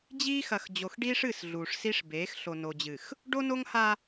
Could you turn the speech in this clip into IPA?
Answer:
d͡ʑ iː˦ x ɐ˨ x d͡ʑ o˨ x ɖ iː˦ ʂ ɨ˦˨ s ɮ uː˨ ʂ s i˦ ʂ b eː˨˦ x ɬ o˨ n o˨ d͡ʑ ɨ˨ x | ɖ o˦ n o˦ ŋ h a˦

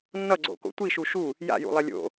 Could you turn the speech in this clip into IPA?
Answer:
nː ʌ ɡ͡ǀ o̰ k o̰ tʷ i ʃ u ʃ u | j a̰ j ṵ lˠ ɛ lʲ o̰

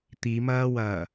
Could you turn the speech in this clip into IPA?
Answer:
t̪ i m ɐː w ɐː

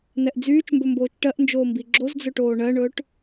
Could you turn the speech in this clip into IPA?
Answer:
n ɛ ʔ d͡z yː t͡ʃ m b ɵ m b oː t͡ʃ ʈ ɜ ʔ n d͡ʒ oː m b i ɡ͡ǁ o z d͡z ɵ ʈ oː ɳ ɜ ɳ ɵː ʈ

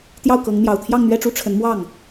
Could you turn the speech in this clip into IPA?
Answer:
t̪ j ɑ˥˩ ʊ̯ k ɤ˧˥ ŋ n̪ j ɑ˨˩ ʊ̯ t̪ʰ j ɑ˥˧ ŋ n̪ ɥ ɛ˥˧ ʈ͡ʂ u˥˩ ʈ͡ʂʰ ə˧˥ n m w ɑ˥˩ ŋ

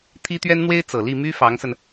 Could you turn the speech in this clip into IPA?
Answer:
t̪ʰ i˥ t̪ ɥ ɛ˥ n n̪ w e˥ ɪ̯ t͡s ɤ˨˩ l i˥˩ m y˥ f ɑ˧˥ ŋ s ə˧ n

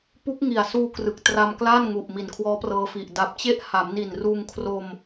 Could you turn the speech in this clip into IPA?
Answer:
p u˦˥ k̚ ŋ i˨˩ a̯ s uː˧ k r ɯ˨˩ k̚ t r a˧ m k l a˥˩ n ŋ u˨˩ ʔ m i˨˩ n kʰ w ɔː˦˥ p r ɤː˧ f i˨˩ ʔ d a˨˩ p̚ t͡ɕ e˦˥ ʔ h a˩˦ m n i˨˩ n r uː˧ ŋ kʰ r o˧ m

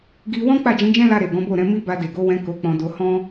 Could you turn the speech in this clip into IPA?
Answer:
ɡ i˧ w ɔ̃˦ k͡p a˦˨ d͡ʒ ĩ˨˦ d͡ʒ ɛ̃˦ l a˧ ɾ e˨ ɡ ɔ̃˨˦ b o˦˨ ɾ ɛ̃˨˦ m i˦ b a˧ d e˨ ɡ o˨˦ w ɛ̃˧ k o˧ k͡p ɔ̃˧ d o˧ h ɔ̃˦

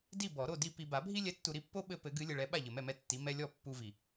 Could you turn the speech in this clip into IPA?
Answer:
d i˥˨ b ɔ˨˩˦ ɾ o˥˨ d i˥˨ p i˨ b a˨˩˦ bʱ i˦ lʲ ɛ˨˦ tː u˨ ɾ i˥˨ pː o˦ ɓ ɘ˦ p ɘ˨˩˦ ɡ ɨ˨˦ lʲ ɘ˨ ɭ ɛ˨˦ ɓ a˥˨ ʎ ɘ˨ m ɛ˥˨ m ɛ˦ tː i˨˦ m ɛ˦ lʲ ɔ˥˨ pː u˦ v i˨

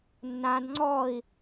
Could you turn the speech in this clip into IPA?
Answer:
nː ã d ŋ͡ǀ ɔ i̯

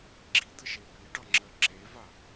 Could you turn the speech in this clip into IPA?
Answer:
ɡ͡ǁ i d̪ ə ʃ e p i ɖ ɑ ŋ͡ǁ ɜ ǁ e v a

